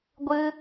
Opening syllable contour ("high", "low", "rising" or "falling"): high